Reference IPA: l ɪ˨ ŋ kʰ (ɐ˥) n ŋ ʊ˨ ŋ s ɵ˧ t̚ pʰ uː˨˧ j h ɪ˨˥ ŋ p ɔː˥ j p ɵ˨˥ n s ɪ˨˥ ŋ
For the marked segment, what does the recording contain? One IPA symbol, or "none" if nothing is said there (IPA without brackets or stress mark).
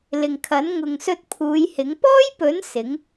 ɐ˨˥